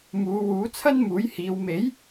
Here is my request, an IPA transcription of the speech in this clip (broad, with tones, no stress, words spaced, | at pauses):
muː˨˧wuː˨˥ t͡sʰɐ˥nmuː˨˥jhiː˨˧w me˨˥j